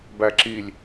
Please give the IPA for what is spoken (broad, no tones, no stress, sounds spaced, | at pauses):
b æ ǁ i lʲ